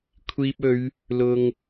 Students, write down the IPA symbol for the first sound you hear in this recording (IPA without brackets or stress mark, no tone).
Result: kʷʰ